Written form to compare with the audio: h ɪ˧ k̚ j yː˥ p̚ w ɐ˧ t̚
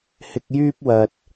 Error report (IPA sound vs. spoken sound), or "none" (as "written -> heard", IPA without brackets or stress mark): none